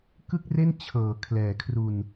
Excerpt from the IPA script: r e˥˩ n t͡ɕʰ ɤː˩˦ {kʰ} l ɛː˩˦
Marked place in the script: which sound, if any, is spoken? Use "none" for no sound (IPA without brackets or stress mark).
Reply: kʰ